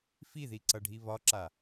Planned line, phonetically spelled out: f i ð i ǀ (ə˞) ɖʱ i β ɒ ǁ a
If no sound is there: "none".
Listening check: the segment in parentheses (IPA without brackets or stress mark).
ʌ